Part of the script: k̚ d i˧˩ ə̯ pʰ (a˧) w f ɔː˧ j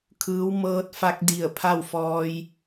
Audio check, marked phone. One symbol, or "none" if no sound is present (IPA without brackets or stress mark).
a˥˨